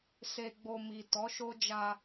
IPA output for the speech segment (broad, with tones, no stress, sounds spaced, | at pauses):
s e˨ ɡ͡b o˨ m i˨ t ɔ˨˦ ʃ o˦ d͡ʒ a˧